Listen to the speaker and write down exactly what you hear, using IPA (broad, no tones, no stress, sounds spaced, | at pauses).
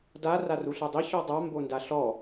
d a r a r u ɬ ɤ dˤ i ç ɔ dˤ a m b o n d a ɬ ɔ